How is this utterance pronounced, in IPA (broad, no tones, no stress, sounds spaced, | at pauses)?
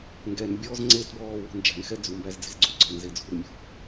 ŋ ɡ ɛ n bʲ ɔː z ŋ͡ǀ e t b ɔː w ṳ n d͡ʒ æ̤ n x ɛ d͡z u m b æ z d͡z e̤ z ɡ͡ǀ u ɡ͡ǀ ɔ n z e d͡z ṳ r mʲ ṳ